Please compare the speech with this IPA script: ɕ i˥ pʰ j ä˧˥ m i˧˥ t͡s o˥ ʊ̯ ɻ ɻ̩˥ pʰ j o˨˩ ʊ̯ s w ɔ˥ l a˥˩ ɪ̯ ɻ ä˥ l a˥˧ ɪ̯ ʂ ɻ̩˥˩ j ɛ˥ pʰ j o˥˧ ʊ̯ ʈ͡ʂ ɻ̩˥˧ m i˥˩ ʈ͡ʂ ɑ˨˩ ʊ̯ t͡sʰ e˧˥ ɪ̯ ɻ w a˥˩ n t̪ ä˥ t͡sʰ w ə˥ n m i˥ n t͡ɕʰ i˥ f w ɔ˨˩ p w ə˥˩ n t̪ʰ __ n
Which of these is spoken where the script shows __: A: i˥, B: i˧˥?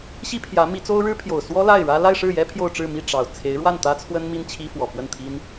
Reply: A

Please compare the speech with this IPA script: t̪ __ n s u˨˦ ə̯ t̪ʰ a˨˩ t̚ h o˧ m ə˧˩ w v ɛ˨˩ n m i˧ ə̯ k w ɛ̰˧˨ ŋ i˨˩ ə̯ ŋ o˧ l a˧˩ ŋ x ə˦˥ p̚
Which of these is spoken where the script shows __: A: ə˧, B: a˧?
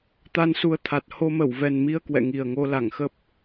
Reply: B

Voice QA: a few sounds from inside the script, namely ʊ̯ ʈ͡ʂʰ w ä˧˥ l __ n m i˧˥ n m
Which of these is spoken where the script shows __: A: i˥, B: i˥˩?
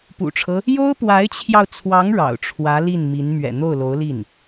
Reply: B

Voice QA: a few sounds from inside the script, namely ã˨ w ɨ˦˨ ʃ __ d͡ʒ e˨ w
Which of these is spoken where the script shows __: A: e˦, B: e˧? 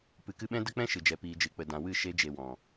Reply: B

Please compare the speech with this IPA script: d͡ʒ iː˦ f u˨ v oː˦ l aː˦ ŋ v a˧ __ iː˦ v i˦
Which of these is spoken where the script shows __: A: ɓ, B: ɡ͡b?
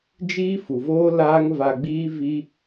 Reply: B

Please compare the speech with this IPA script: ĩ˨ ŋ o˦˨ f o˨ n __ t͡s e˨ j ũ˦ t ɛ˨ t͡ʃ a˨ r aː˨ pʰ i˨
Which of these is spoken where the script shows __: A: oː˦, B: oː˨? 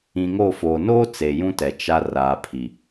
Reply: A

